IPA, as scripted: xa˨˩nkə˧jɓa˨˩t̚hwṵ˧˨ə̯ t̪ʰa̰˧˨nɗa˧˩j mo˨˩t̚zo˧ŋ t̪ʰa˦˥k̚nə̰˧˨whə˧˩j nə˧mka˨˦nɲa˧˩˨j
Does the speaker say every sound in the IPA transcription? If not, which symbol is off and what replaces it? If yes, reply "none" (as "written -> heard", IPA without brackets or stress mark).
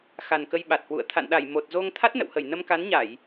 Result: k̚ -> t̚